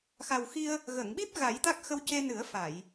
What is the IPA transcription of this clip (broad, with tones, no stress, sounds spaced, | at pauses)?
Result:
x a˨˩ w x i˧ ə̯ | ɣ ə˨˩˨ ŋ ɓ i˦˥ p̚ ɣ a˨˩˦ j t̪ a˦˥ k̚ x ə˧ w c e˧ n ɨ˨˩˦ ə̯ f a˨˩˨ j